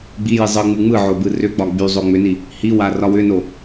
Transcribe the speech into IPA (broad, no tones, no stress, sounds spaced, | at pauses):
ɡ͡b i j i zˤ ɯ ŋ͡m ɯ ŋ͡m ɯ ʕ o b ɯ r ʏ ɡ͡b ɒ ɡ͡b y zˤ o ŋ͡m ʏ n i | h i w a r ɒ w ʏ n o